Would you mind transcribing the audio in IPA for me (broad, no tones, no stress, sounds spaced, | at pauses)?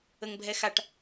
ə ŋ bʱ ɛ x a ʈ